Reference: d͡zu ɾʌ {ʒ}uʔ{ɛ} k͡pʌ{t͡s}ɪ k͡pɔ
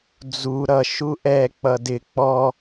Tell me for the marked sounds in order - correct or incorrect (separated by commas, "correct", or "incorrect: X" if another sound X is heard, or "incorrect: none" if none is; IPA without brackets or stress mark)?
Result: incorrect: ʃ, correct, incorrect: d